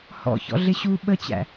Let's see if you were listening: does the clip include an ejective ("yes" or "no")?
no